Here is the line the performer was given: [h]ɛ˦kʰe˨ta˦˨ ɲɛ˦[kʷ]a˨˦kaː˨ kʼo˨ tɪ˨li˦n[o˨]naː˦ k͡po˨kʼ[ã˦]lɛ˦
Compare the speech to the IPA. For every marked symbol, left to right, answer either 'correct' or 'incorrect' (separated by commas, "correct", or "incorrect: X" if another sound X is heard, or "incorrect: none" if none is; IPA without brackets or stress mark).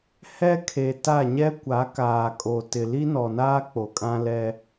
correct, correct, incorrect: ɔ˨, correct